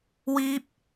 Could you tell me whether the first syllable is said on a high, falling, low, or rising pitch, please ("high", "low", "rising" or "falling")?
high